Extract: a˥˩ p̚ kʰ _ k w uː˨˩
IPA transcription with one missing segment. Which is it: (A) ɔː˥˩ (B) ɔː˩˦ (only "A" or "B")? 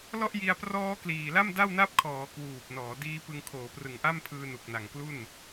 B